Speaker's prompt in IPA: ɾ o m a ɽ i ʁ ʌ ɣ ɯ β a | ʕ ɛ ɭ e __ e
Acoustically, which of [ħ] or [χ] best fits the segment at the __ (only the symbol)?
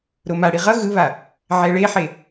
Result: ħ